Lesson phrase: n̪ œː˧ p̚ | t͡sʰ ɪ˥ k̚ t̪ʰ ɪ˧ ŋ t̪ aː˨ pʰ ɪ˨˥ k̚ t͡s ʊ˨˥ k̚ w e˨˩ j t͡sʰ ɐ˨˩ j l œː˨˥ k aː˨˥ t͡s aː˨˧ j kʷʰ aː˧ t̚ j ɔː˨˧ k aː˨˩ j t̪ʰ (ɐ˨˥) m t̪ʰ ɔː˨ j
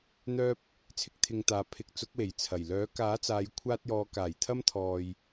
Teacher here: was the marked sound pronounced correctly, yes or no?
no